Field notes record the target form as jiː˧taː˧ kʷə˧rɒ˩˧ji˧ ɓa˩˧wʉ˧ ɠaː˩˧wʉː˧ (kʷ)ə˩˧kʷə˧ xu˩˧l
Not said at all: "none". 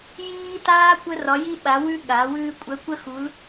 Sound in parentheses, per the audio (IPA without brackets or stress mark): kʷʼ